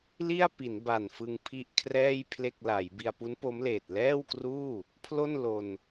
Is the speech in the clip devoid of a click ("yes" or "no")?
yes